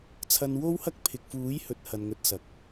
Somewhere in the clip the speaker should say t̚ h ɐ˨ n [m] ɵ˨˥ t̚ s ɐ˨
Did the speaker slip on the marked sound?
yes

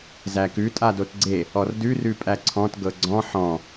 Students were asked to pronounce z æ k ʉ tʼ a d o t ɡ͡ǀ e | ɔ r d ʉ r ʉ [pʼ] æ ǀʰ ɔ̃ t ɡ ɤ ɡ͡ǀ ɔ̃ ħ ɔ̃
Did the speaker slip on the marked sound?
no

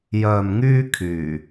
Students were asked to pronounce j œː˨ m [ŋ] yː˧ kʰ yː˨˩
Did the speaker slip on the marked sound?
no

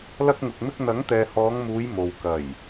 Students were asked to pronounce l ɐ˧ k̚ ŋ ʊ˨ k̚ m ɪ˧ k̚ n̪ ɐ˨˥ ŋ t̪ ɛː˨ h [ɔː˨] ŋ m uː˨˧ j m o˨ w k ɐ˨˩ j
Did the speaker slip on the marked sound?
yes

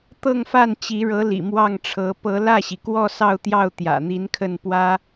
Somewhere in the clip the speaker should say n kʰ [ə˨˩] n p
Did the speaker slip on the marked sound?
yes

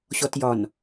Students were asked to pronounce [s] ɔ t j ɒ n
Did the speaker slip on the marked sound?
yes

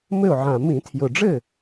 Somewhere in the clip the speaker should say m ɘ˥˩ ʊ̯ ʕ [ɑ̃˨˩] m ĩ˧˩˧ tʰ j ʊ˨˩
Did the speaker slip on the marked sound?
yes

